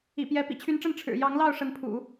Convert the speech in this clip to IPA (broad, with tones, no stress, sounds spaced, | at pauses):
ḭ˨˩ p j ɛ˧˥ p ḭ˨˩ t͡ɕʰ y˧˥ n ʈ͡ʂ ə˥˩ n ʈ͡ʂʰ ɻ̩˨˩ j ɑ˧˥ ŋ l ɑ˥˩ ʊ̯ ʂ ə˧˥ n pʰ ṵ˨˩˦